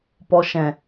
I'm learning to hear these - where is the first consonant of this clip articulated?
lips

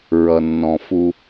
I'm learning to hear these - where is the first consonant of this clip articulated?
tongue tip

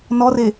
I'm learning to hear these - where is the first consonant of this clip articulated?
tongue tip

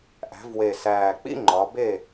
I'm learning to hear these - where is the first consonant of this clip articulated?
throat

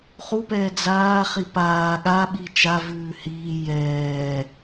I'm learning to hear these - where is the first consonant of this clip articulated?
uvula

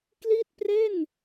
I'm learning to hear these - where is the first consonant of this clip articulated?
velum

